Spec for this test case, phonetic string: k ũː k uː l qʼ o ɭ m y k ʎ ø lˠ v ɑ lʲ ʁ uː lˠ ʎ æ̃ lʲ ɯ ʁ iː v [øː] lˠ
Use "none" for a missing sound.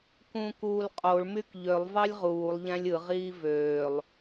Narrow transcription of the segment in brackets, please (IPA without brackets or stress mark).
øː